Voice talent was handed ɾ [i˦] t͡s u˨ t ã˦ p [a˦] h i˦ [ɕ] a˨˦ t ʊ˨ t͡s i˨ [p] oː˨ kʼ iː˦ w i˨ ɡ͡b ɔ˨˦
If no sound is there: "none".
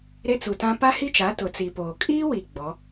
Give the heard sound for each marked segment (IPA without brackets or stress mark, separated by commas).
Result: e˦, a˦, t͡ʃ, p